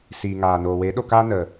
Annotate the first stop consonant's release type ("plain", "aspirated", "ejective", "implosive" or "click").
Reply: implosive